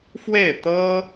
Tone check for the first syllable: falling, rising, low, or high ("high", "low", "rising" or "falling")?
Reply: falling